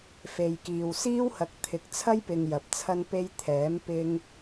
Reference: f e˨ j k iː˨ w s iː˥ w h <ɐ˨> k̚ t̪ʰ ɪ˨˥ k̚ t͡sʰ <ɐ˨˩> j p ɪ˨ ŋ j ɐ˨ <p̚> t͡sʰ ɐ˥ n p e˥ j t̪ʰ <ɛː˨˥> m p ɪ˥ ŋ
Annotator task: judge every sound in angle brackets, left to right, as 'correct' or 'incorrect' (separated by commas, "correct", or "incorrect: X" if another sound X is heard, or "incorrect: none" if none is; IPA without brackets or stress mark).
incorrect: ɐ˨˥, incorrect: ɐ˥, correct, correct